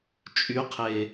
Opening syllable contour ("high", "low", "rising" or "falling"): rising